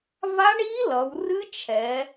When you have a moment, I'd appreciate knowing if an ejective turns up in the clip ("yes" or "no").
no